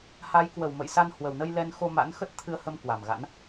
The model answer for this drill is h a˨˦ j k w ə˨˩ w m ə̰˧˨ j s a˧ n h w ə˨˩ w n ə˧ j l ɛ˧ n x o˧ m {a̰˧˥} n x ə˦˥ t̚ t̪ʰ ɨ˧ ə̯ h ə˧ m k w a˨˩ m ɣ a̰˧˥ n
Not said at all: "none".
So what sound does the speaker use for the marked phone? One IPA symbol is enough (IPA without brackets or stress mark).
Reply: a̰˧˥